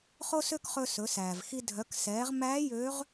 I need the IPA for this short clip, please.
χo˥sø˥k χɵ˧sɵ˩˧sæː˩vxi˧ dʱœ˩˧ksɛː˩˧ʁmæː˧˥ jø˧˥ʁ

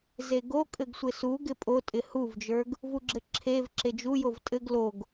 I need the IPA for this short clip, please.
zeɡokʼɘɡsʷɪ su ɡɪpʼotʼɪ huvd͡ʒə˞ɡ | vuɡ͡ǁɘǁʰev ǁed͡ʒujov tʼɘɡ loɡ

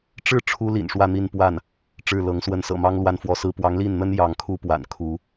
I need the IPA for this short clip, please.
ʈ͡ʂɻ̩˥˩ ʈ͡ʂʰu˥lḭ˨˩nʂwä˥˧ n̪i˥˧npwa˥˩n | ʈ͡ʂɻ̩˥˩lɤ˧˥ŋ swə˧˥nsɤ̰˨˩mɑ˥ŋ lwa˥˧nfwɔ˥˩sɹ̩˥ pwɑ˧˥ŋli˥˩nn̪ə˥n jɑ˧˥ŋkʰu˥ pwa̰˨˩nkʰu˧˥

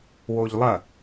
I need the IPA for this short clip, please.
woʎlˠɐ

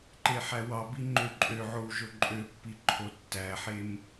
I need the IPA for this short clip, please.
ǃeħæwɑbi ŋ͡ǃøǃʼøʕow ʒoǃʼøpːi ǃʰotːæħem

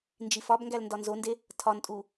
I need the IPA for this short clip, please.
nd͡ʒifɒbŋɡæl ndɒnzonde | tʰɒntʼu

